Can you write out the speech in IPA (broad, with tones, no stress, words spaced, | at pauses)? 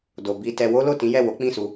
do˨ bi˧tɛ˧ wo˦lo˦˨tĩ˨˦jɛ˦˨ wo˨˦k͡pĩ˦˨su˧